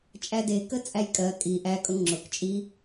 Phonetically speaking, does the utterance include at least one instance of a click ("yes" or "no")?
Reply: yes